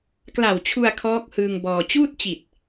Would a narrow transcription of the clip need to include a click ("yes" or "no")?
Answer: no